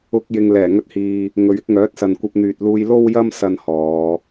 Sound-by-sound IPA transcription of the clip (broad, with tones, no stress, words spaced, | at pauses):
ʊ˧k̚ jɪ˨ŋlɛː˨˩ŋɵ˧t̚hiː˨ | ŋɵ˨ɥɪ˨˥k̚ ŋœː˨˥t̚sɐ˨n kʷɐ˧p̚n̪yː˨t̚luː˧j lo˥wjɐ˥m sɐ˥nhɔː˨˧